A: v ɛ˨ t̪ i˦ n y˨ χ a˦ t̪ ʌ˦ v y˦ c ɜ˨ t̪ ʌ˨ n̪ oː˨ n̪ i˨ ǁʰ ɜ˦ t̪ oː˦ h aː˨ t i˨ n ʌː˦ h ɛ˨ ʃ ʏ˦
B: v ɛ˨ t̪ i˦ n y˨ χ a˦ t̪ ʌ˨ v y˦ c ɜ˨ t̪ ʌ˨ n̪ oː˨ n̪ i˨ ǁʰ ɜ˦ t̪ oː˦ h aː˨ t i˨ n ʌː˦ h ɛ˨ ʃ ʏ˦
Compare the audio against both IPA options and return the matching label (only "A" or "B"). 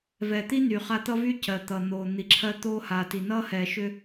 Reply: A